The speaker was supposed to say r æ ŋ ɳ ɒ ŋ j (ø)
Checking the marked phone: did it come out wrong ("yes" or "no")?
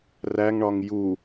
yes